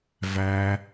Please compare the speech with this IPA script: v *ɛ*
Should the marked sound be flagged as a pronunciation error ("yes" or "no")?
yes